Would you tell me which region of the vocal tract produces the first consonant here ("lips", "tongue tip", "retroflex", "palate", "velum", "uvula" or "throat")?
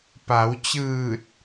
lips